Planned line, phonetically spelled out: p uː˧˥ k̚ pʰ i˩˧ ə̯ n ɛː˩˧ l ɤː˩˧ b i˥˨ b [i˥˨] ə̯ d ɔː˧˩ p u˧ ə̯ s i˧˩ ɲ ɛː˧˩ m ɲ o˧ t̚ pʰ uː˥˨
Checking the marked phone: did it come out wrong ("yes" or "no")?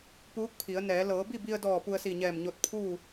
yes